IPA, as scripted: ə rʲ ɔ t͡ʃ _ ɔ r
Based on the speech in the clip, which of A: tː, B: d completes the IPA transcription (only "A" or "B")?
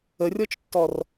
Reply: A